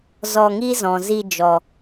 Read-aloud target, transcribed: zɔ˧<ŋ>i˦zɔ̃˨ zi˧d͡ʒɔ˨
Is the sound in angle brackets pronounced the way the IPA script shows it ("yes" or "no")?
yes